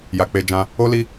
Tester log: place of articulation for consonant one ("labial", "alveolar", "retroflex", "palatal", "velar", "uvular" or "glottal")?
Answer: palatal